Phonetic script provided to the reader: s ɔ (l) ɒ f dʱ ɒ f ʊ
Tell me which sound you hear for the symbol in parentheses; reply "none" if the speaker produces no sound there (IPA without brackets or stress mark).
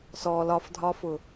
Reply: l